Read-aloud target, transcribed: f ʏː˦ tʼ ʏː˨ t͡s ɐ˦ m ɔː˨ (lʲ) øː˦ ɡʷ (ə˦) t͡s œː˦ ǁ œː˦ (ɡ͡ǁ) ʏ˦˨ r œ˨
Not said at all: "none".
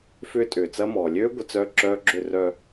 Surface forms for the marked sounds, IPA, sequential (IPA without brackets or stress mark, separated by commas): lʲ, ə˦, ɡ͡ǁ